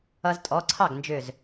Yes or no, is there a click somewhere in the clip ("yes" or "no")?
yes